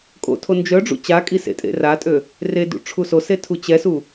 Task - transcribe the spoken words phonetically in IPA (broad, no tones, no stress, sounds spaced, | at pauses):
kʼ o̰ tʰ o n d͡ʒ œ ɖ͡ʐ ṵ t͡ɕ a kʼ i s ḛ tʼ ḛ r a tʼ ø | r e d ṵ ʈ͡ʂʰ u s o s e tʰ u t͡ɕ ɛ s u